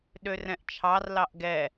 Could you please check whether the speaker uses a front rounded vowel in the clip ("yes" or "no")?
yes